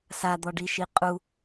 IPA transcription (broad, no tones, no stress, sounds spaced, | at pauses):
s a d̪ ɔ ɖ i ʃ i qʼ u